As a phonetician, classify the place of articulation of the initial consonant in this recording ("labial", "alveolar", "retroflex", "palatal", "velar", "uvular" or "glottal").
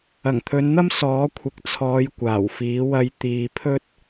velar